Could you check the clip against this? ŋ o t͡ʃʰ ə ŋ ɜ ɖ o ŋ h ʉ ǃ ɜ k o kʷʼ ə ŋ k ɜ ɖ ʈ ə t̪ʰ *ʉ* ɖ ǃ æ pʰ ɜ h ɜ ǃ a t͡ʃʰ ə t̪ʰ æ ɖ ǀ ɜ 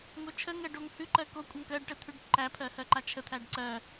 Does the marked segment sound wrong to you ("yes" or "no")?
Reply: no